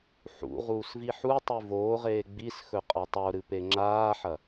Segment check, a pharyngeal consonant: present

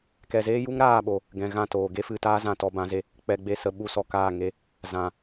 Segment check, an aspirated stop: absent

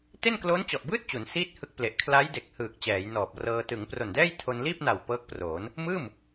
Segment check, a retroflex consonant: absent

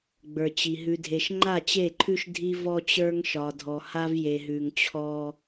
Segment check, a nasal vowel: absent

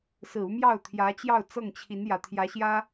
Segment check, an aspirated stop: present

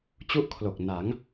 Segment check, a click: absent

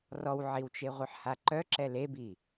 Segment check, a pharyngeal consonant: present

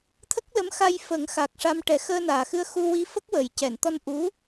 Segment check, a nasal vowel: absent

